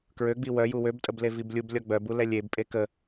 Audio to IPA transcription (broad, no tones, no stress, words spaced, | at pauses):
kɹøɡ͡bi wœju wøbtʼəble viblʲub lʲɔɡ͡bœbu lɛlʲebpʼe kə